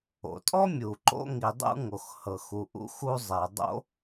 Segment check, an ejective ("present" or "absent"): present